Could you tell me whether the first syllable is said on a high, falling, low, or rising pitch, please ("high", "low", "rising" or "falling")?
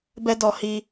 high